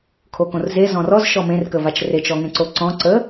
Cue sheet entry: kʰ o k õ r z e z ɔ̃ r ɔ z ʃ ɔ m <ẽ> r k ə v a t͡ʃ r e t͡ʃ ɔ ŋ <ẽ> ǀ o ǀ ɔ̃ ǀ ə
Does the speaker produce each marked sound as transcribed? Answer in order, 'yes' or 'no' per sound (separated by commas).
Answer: yes, yes